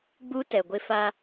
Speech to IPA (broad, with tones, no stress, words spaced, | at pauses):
ɡ͡bu˦ tɛ˨ɡʷɪ˦ fa˦